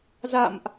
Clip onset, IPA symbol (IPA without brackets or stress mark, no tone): z